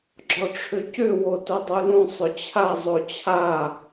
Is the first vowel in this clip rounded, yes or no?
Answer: yes